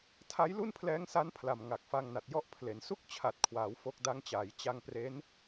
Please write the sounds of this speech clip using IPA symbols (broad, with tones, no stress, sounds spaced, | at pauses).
tʰ a˦˥ j l u˥˩ n pʰ l ɛː˦˥ ŋ s a˦˥ n pʰ l a˨˩ m ŋ a˨˩ k̚ f a˧ ŋ n a˨˩ t̚ j ɔ˥˩ ʔ pʰ l e˩˦ n s u˥˩ k̚ t͡ɕʰ a˨˩ t̚ kʰ w aː˩˦ w f o˦˥ k̚ d a˦˥ ŋ t͡ɕ aː˩˦ j t͡ɕ a˧ ŋ p r e˦˥ n